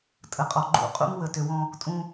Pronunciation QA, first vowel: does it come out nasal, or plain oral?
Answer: oral